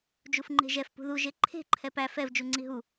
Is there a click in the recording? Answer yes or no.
yes